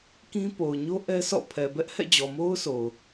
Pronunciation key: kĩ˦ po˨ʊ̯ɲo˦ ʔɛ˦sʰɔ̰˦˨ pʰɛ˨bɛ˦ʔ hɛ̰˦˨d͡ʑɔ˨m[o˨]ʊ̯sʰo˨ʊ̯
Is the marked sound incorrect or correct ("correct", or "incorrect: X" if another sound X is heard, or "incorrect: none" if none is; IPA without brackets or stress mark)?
incorrect: o˦